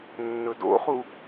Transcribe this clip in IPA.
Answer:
nːɵdo̰χu

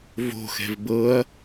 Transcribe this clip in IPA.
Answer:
vo̤xɛ̤v bɤɐ̯

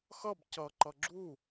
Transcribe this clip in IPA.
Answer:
xʌb cʌǃʌ ɡ͡ǁu

